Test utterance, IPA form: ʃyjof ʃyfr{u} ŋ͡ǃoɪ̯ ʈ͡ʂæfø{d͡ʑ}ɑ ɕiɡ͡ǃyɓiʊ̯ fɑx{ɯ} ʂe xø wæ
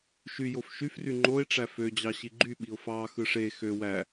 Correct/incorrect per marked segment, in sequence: incorrect, correct, correct

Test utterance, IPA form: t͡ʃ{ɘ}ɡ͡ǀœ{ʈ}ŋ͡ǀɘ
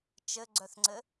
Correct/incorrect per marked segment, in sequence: correct, incorrect

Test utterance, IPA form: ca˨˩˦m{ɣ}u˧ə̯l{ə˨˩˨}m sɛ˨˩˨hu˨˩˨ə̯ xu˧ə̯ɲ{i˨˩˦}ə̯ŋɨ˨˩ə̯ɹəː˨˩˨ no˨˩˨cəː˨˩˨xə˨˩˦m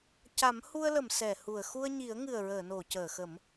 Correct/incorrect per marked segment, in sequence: incorrect, correct, correct

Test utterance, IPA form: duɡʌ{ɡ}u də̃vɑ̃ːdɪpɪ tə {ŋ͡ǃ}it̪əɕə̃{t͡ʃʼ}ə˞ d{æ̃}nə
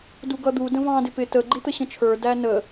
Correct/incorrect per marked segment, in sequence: incorrect, incorrect, incorrect, incorrect

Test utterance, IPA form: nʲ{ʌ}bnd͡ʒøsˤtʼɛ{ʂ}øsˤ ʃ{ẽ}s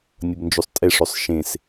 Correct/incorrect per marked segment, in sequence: correct, correct, correct

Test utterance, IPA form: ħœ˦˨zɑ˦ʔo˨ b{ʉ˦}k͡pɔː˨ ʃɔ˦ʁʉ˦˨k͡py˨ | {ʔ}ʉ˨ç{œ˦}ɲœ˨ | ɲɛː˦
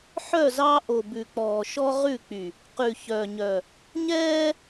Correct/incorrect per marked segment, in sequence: incorrect, incorrect, incorrect

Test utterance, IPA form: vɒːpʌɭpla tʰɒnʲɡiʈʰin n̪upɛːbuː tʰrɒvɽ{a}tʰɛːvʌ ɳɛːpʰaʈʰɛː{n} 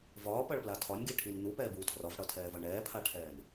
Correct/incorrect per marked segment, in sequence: incorrect, correct

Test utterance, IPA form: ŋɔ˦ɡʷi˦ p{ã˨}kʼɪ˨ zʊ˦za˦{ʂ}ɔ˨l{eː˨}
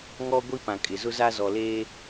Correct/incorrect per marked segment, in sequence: correct, incorrect, incorrect

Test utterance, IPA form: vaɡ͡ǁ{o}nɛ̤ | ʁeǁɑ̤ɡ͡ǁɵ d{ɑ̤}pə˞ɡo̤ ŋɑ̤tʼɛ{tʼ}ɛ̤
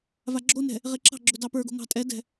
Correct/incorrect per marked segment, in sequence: correct, incorrect, incorrect

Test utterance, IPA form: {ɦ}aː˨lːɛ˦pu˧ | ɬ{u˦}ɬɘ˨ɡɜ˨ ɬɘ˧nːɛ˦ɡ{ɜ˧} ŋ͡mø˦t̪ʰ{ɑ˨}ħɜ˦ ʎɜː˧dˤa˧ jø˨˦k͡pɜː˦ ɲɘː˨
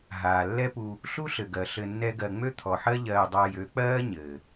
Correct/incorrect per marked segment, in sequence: correct, correct, correct, incorrect

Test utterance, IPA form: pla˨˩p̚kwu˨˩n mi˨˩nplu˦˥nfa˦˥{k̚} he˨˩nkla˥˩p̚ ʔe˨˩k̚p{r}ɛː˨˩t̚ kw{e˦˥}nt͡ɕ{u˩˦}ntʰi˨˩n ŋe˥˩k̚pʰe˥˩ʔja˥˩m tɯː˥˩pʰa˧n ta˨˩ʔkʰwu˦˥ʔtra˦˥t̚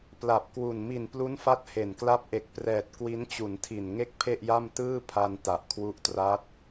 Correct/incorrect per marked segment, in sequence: incorrect, correct, incorrect, correct

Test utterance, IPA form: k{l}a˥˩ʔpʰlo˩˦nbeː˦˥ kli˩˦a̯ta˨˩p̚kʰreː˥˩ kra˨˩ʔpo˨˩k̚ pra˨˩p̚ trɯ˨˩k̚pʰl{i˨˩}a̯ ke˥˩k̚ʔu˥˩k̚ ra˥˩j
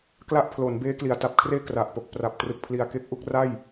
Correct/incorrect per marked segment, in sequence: correct, correct

